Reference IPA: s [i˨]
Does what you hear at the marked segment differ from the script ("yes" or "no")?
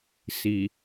no